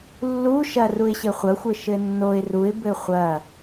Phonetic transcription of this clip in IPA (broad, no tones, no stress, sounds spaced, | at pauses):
lː u ʃ ɐ r u ɪ̯ ɕ ɘ χʷ ɐ xʷ ɘ ʃ ɘ nː o ɪ̯ r u ɪ̯ b ɘ χʷ ɐ